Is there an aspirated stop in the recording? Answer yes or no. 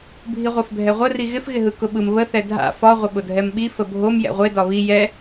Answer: no